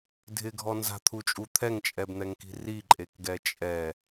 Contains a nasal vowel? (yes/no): no